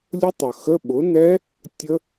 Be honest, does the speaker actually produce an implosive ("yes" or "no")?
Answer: yes